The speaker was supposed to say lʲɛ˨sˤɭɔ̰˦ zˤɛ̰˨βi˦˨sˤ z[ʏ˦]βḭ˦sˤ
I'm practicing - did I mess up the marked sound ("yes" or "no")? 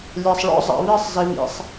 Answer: yes